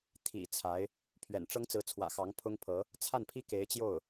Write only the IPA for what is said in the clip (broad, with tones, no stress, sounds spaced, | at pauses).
t̪ʰ ḭ˨˩ t͡sʰ a˧˥ ɪ̯ | pʰ ɥ ɛ̰˨˩ n ʈ͡ʂ ɤ˥ ŋ t͡s ɹ̩˧˥ t͡sʰ w ä̰˨˩ x ɑ˧˥ ŋ pʰ ʊ˥ ŋ pʰ ɤ˧˥ | t͡sʰ a˥˩ n pʰ i˥ k e˧˥ ɪ̯ t͡ɕ j o˥˩ ʊ̯